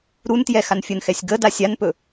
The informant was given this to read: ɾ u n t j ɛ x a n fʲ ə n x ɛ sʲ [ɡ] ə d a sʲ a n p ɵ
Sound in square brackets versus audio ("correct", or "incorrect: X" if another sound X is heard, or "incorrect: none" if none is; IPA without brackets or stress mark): correct